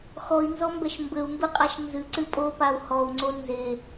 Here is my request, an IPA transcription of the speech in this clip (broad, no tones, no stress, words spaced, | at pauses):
xɔi̯nzɔmbɛʃ mbɘu̯mbɨqʼaʃ nzɨǀɨ pʼopau̯ hɔu̯ŋ͡ǀo nze